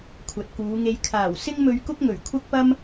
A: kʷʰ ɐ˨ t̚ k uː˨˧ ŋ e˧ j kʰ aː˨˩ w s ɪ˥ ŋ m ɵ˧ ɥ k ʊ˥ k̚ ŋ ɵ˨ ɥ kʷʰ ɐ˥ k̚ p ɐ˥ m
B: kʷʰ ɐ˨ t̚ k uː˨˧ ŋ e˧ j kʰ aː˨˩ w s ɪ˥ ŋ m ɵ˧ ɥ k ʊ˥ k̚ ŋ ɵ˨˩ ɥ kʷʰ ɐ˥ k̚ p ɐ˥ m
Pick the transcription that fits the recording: B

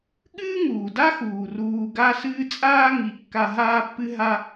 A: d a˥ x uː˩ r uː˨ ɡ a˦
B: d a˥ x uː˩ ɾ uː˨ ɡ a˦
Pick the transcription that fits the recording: A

